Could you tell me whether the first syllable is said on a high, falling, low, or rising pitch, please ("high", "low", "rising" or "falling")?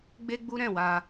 high